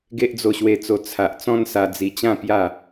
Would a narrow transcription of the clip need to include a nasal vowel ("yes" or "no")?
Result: yes